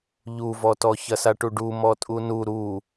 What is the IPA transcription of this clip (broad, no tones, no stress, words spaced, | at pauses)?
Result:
ʎuvɔtɔ çɐsaʈuɖu mɔtʼunu ɾu